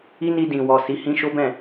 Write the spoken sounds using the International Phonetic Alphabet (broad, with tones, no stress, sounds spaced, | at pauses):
i˦ n i˧ d ĩ˨ w ɔ˨ s i˨˦ h ĩ˦ ʃ o˦ b ɛ̃˦˨